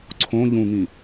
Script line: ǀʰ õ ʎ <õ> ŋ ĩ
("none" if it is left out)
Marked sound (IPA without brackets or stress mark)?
ũ